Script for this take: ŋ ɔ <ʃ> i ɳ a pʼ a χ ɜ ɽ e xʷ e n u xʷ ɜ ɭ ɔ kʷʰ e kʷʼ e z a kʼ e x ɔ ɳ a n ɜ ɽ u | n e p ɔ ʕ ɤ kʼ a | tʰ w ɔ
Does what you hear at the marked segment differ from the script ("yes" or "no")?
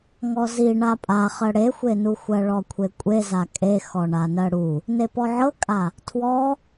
yes